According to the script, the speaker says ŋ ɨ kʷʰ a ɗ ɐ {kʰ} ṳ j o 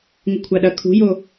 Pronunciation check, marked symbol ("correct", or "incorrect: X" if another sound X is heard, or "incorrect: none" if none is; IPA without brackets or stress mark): correct